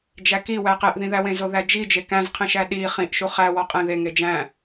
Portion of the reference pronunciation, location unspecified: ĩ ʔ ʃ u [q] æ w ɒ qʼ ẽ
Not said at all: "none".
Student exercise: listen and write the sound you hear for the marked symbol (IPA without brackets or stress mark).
χ